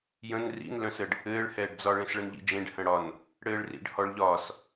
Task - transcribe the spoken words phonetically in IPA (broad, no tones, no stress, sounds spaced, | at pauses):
j ə̃ n r ḭ n l œ̃ s ə ɖ | ɘː ɭ h ɛː ɖ d͡z ɒ ɭ ẽ s ɭ ə n ʎ ḭ d͡ʒ ẽ ɖ h ə̃ ɽ ɒ n | ɽ ɘː ɭ r ḭ ɖ h ɔ ɭ ʎ ɒː s